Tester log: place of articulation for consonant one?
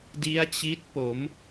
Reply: alveolar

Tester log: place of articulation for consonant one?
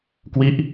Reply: velar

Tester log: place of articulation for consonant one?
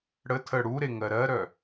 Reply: retroflex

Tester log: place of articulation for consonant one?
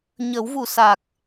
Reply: palatal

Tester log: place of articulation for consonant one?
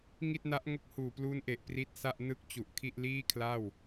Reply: velar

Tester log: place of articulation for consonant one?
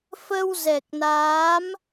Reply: labial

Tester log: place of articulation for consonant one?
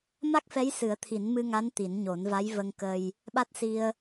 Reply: labial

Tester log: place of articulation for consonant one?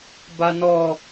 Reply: labial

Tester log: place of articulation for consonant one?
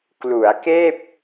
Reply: velar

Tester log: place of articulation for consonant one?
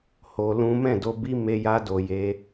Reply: glottal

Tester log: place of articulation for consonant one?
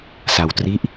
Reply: alveolar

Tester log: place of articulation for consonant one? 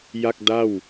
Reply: palatal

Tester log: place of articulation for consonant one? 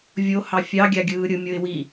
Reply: labial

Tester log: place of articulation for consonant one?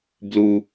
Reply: labial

